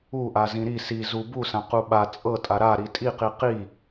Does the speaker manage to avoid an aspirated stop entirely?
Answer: yes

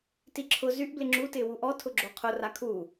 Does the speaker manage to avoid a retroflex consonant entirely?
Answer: yes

